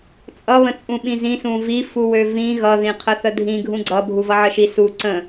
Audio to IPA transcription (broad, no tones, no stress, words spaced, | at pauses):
t͡sʼʌβə̃ t͡sʼũɓĩzĩ sũvi fuwøvĩ ɣʌðĩqʰə θədʱĩɡʱũ ɡ͡ǀʌ bʱuvʌʕəʃi su ǀə̃